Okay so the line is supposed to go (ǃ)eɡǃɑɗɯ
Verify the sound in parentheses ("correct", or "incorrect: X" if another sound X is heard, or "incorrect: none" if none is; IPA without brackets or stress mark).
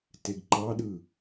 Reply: incorrect: t